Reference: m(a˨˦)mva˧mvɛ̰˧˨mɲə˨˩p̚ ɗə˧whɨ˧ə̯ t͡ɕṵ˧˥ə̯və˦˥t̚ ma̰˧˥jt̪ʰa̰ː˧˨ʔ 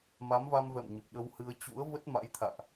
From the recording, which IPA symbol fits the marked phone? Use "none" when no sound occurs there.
a˨˦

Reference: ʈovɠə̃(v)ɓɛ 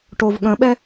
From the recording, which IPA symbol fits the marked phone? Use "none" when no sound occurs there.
none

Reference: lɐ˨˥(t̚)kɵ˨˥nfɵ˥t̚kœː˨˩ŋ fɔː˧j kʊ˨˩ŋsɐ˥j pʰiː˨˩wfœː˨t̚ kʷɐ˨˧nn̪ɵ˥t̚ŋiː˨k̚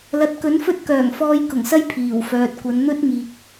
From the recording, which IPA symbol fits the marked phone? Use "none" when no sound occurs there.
t̚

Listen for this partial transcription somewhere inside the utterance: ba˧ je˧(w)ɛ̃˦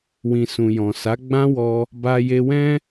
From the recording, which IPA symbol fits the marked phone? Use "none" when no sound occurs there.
w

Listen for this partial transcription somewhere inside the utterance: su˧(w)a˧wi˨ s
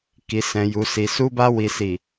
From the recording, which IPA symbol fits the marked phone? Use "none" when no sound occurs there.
b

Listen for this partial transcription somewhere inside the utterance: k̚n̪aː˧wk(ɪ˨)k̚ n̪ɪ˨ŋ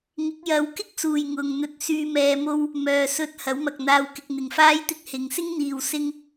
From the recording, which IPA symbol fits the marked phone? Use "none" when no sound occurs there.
ɪ˧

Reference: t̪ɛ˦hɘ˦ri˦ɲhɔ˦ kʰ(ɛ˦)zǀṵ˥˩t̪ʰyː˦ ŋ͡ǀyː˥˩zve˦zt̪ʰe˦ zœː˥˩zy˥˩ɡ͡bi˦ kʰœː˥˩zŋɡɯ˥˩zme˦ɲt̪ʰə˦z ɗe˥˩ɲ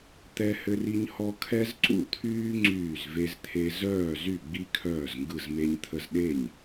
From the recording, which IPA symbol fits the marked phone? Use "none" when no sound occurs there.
ɛ˦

